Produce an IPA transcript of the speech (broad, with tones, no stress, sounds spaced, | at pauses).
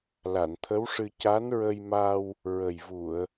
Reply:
l a˨˩˨ n t̪ʰ ə˧˥ w ʂ ɨ˧ c a˧˥ n ɹ ə˧ j m a˧ w | ɹ ə˨˩ j v u˨˩˨ ə̯